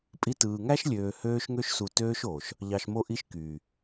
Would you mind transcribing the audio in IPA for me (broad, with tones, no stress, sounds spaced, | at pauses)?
pʼ i˧ t ɯː˨ ŋ æ˦ ʃ lʲ øː˨ h øː˧ ʃ ŋ ø˧ ʃ s u˨ t øː˧ ʃ oː˨ ʃ | ʎ ɑ˨ ʃ m o˧ ʔ i˧ ʃ k yː˨